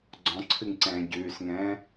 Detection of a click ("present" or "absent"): present